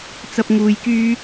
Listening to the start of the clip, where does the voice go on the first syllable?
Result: high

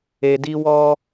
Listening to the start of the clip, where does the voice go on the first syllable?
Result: low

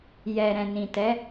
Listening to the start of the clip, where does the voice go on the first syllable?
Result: low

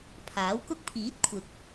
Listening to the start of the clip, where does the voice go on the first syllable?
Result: rising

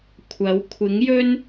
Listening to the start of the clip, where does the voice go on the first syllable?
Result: rising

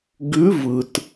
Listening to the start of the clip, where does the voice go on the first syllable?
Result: rising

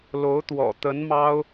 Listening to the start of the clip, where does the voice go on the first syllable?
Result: rising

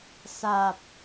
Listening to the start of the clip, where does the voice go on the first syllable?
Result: low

